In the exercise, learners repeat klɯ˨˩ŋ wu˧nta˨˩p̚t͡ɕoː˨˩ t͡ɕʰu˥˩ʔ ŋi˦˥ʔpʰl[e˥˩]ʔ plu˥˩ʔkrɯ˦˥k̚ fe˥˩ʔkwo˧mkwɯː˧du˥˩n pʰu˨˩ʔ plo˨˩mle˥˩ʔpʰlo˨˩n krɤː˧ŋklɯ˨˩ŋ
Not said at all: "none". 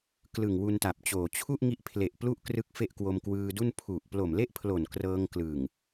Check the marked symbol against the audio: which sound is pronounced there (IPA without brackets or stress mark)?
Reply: e˨˩